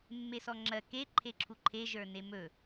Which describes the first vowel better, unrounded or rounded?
unrounded